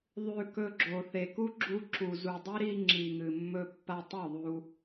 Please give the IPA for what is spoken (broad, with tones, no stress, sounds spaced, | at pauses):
ðˤ ʉ˧ k ɵ˧ ɡ͡ǁ o˨ θ e˨ k u˦ ɡ͡ǁ u˧ ǁ u˨ z u˨ dˤ e˦ ɾ i˧ ŋ͡ǁ i˨ ŋ ɨ˨ mː ɵ˧ pː a˧ tˤ u˦˨ ðˤ u˧